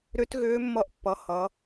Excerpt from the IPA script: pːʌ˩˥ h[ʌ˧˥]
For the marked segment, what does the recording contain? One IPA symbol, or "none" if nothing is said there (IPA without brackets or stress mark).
ʌ˩˥